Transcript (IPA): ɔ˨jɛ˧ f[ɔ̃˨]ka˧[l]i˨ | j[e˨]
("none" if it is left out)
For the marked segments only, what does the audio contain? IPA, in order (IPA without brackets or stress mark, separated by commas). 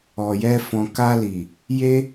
ɔ̃˨, l, e˦